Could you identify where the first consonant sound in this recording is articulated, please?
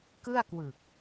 velar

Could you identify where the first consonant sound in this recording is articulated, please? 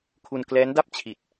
velar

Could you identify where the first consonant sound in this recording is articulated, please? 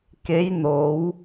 velar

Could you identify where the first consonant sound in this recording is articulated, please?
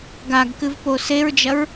velar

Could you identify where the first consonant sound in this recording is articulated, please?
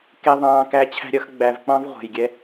velar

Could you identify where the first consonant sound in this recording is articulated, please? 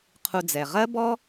uvular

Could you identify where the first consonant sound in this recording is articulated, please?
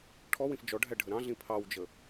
retroflex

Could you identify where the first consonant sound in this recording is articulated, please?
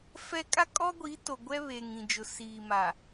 labial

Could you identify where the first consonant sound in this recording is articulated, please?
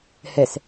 glottal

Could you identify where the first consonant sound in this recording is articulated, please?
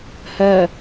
glottal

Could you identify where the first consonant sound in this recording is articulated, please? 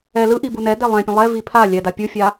alveolar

